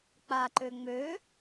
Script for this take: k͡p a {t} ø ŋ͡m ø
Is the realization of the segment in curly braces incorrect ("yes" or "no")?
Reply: yes